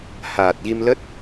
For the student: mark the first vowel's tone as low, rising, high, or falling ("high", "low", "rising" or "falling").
low